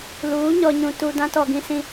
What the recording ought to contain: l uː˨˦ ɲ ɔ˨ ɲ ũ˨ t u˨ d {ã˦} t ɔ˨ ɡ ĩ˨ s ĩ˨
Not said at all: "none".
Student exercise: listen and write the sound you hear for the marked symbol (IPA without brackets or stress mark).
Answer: ã˦